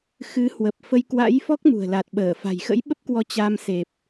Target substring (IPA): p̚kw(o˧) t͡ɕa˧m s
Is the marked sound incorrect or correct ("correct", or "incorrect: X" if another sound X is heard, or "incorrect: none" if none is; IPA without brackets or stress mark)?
incorrect: ɔ˧